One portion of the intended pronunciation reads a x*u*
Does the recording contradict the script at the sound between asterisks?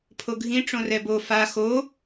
yes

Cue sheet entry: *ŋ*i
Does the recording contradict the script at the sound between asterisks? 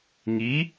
no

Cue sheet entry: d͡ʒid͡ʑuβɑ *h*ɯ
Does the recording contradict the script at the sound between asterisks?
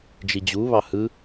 no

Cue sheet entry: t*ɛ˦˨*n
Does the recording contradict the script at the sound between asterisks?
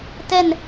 no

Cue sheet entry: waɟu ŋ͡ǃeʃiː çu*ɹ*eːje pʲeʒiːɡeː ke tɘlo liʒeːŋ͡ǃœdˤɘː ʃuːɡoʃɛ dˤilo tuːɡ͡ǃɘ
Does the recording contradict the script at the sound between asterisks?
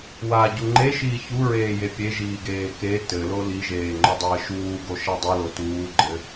no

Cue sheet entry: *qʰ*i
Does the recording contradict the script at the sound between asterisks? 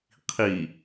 no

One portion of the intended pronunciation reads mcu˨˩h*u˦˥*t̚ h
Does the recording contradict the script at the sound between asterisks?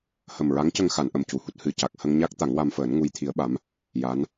no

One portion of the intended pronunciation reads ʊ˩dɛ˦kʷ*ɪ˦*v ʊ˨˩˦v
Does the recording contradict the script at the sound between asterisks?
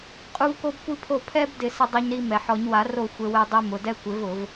yes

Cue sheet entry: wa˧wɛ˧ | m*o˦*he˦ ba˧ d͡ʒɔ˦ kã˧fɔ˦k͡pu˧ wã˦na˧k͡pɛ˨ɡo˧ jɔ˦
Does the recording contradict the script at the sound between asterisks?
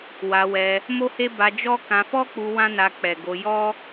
no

